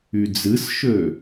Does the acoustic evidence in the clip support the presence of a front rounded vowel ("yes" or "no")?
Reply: yes